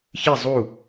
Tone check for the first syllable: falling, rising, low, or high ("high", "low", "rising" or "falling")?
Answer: falling